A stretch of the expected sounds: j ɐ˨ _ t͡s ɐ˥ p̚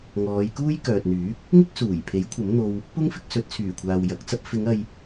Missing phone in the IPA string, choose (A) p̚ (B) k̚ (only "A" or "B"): B